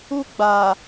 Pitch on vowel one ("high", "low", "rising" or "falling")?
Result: high